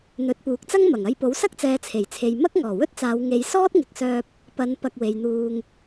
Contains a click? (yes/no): no